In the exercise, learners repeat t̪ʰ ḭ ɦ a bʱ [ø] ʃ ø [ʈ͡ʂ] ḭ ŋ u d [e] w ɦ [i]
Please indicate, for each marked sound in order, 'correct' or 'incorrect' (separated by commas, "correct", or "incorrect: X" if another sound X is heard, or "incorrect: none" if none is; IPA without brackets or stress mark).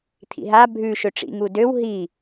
incorrect: ʉ, correct, incorrect: ø, correct